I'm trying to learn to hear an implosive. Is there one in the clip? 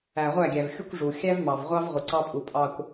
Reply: no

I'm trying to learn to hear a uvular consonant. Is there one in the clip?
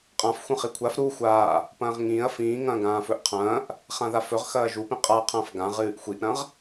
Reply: yes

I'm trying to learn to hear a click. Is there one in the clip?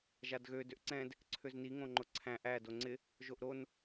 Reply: yes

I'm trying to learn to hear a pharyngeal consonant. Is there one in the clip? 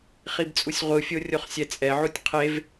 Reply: yes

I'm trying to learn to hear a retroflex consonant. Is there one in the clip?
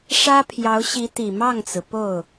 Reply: yes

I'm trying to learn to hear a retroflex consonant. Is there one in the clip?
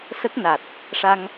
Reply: yes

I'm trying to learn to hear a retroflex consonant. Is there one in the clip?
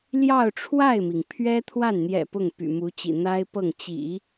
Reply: yes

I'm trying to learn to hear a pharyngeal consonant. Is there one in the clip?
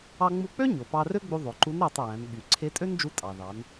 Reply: no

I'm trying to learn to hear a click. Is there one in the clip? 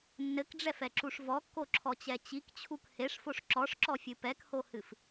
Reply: yes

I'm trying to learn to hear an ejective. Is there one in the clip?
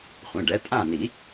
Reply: yes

